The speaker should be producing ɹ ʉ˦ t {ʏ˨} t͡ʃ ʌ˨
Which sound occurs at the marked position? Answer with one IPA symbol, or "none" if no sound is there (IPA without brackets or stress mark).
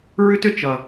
ʏ˨